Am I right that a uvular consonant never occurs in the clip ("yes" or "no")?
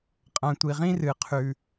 no